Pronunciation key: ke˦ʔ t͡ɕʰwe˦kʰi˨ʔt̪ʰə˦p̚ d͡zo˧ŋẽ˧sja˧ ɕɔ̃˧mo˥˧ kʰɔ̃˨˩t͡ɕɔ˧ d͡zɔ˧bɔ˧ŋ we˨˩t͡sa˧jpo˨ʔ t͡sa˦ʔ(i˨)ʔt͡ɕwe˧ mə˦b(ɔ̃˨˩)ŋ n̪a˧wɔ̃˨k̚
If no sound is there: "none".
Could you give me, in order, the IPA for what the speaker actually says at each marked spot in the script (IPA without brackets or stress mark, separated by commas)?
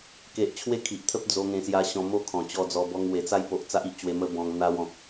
i˦, ɔ̃˧